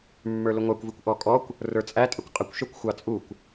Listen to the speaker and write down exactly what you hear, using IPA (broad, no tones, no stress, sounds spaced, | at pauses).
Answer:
mː ə˞ l ʊ ŋʷ ɑ kʷ v i kʷ ʔ ɔ kʼ ɔ kʷ | r ə˞ t͡sʼ æ tʼ ə kʷ qʼ ə kʷ ʃ ə˞ kʷ xʷ ɑ t͡sʼ u kʷ